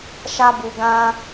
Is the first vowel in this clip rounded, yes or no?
no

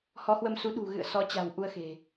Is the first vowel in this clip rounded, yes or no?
yes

